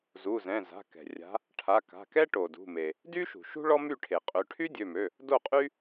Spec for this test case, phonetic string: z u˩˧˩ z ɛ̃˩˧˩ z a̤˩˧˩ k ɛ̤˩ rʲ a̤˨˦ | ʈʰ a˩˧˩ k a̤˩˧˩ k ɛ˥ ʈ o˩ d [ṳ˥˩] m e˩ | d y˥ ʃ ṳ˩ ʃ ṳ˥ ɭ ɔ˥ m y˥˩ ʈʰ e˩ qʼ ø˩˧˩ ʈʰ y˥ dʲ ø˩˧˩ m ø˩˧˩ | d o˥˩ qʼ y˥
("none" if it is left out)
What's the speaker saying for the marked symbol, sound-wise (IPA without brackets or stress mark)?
ṳ˩˧˩